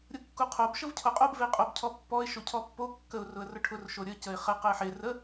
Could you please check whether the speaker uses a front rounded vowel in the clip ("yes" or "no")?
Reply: no